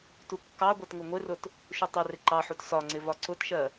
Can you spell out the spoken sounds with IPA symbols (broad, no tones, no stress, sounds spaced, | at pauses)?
t u kː ɑ ɡʷ ɜ t ŋ ʊ ŋʷ ɪ r ʊ t | ʃ u tˤ ɛ r ɪ ǃ ɑ ħ u t s ɒ ŋ͡ǀ ɪ v ɒ ǀ ʊ t ʃ ɜ